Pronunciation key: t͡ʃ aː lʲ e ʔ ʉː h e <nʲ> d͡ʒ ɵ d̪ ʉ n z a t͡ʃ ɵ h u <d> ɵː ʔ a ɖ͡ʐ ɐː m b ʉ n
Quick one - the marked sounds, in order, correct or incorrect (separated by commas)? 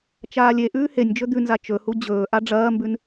correct, incorrect